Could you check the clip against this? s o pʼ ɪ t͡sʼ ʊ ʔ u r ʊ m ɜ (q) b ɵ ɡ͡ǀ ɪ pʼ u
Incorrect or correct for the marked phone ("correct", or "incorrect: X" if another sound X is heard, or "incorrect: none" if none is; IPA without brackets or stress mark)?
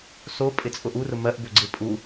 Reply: incorrect: ʔ